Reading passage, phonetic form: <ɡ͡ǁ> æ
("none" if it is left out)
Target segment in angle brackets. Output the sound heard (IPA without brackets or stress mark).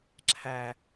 ǁʰ